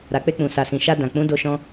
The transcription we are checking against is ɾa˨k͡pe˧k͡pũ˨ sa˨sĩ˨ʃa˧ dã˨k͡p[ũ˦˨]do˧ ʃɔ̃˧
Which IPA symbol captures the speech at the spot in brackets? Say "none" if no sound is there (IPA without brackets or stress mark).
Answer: ũ˨˦